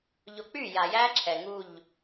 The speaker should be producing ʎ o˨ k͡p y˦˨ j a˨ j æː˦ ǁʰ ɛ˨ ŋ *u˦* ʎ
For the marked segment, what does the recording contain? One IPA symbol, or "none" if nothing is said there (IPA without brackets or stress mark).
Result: u˦˨